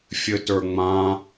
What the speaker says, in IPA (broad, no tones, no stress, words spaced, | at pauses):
fʲɘtə˞ŋ͡mã